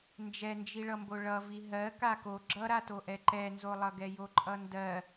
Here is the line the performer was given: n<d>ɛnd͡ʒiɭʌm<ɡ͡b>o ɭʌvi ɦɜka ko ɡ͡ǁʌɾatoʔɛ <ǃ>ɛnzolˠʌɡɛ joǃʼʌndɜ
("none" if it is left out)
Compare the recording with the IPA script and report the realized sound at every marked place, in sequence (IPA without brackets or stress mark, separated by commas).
d͡ʒ, b, ǃ